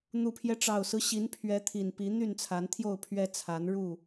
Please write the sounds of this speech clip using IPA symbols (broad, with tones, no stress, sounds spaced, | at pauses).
n̪ u˨˩ pʰ j ɛ˦ ʈ͡ʂ ɑ˨˩ ʊ̯ s ɹ̩˦ ɕ i˨˦ n pʰ ɥ ɛ˨˦ t̪ʰ i˨˩ n p i˨˦ n̪ y˥˨ n t͡sʰ a˨˦ n t̪ʰ j o˥˨ ʊ̯ pʰ ɥ ɛ˦ t͡sʰ a˨˦ n ɻ u˥˨